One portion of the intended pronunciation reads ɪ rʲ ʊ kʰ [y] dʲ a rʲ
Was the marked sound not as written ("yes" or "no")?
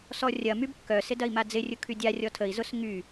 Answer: no